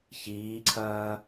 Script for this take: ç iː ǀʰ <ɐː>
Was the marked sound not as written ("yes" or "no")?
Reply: no